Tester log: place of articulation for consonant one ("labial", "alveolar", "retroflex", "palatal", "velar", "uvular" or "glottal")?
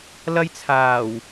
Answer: alveolar